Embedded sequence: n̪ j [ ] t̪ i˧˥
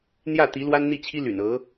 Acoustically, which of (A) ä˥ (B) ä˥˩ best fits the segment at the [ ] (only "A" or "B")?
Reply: B